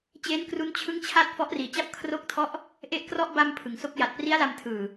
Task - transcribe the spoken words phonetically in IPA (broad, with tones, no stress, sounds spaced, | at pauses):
t͡ɕ eː˦˥ n k r u˦˥ n t͡ɕʰ ɯ˦˥ ŋ t͡ɕʰ a˦˥ t̚ f ɔ˦˥ ʔ r iː˨˩ t͡ɕ a˥˩ p̚ kʰ r o˥˩ k̚ tʰ ɔ˥˩ ʔ | ʔ e˥˩ ʔ k r ɔ˥˩ ʔ b a˧ m pʰ ɯ˩˦ ŋ s o˥˩ k̚ j a˨˩ t̚ p r i˦˥ a̯ l a˧ m tʰ ɯː˨˩